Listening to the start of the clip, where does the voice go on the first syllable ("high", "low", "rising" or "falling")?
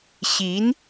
rising